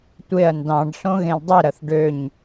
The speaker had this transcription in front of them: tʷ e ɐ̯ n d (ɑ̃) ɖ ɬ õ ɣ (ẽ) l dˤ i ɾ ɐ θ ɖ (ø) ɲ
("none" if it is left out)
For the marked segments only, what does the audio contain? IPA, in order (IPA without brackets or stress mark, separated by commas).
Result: ɑ̃, ẽ, ø